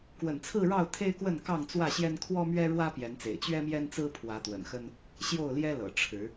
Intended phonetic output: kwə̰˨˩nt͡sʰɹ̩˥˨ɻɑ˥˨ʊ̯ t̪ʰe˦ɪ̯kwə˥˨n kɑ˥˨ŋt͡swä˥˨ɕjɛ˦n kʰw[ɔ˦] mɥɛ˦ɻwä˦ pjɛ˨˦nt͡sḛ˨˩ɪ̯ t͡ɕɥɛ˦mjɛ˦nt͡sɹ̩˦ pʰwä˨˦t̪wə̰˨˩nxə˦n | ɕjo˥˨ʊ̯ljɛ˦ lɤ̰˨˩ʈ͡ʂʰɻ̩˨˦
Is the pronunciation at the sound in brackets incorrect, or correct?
correct